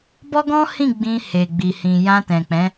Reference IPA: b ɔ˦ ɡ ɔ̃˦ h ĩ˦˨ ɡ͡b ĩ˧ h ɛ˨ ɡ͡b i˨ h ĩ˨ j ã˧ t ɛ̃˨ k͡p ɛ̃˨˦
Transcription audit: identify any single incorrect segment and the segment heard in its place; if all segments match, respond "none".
ɛ˨ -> e˨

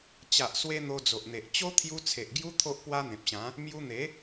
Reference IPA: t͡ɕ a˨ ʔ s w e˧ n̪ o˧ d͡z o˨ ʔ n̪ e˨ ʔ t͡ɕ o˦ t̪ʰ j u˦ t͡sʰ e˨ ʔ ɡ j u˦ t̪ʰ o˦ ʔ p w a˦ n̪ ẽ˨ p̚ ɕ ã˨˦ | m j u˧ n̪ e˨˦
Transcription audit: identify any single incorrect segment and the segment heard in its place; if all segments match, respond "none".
none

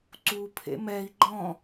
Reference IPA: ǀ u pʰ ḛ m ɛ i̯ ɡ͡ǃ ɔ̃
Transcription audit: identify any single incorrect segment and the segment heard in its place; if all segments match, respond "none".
none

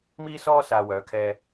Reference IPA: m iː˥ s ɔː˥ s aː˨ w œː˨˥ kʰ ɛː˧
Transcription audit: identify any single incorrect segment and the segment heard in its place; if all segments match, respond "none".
none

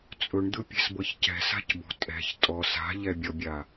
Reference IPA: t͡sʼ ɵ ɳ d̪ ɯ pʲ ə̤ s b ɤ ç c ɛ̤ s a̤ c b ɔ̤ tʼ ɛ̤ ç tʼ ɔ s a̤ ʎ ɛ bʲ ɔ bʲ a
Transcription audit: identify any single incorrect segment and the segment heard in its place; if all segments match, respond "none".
ə̤ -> ɛ̤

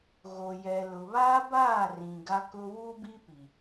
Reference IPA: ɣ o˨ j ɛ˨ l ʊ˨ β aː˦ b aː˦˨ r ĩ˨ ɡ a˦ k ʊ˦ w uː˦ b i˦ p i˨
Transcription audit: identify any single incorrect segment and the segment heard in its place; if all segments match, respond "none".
none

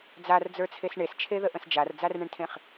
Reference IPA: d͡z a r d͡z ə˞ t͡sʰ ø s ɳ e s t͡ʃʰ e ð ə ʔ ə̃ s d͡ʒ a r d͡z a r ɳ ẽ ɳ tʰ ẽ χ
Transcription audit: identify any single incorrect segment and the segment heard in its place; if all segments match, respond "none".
ø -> e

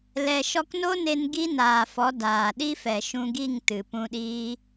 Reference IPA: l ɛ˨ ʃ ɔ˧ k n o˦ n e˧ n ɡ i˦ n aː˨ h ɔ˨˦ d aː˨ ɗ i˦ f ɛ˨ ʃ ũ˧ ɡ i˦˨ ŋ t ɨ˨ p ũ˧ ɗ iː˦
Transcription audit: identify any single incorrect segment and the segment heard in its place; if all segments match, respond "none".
h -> f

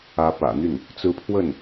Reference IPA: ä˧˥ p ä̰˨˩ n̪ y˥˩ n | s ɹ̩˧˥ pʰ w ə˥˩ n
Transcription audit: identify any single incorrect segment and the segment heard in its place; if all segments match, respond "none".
s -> t͡s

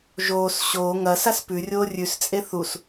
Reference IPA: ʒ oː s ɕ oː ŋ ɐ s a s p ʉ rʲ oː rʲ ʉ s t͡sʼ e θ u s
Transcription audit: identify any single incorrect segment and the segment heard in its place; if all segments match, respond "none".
none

